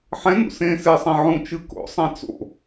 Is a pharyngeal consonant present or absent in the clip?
present